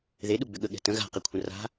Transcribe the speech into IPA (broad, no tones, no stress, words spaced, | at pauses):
ðeɗuɡ͡bʏ ɠəɠɛ̤ tə̃ ɣa̤qekʷʰə̃ ra̤